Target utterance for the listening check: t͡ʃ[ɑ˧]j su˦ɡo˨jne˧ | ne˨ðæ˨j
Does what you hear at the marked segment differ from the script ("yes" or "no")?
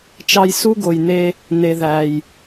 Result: no